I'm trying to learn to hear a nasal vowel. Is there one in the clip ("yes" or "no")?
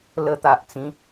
yes